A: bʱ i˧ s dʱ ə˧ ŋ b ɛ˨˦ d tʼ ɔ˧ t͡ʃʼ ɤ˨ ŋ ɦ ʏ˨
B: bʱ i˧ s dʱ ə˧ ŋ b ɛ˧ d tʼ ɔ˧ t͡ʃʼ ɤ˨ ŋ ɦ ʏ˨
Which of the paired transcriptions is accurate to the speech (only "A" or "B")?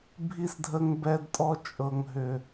B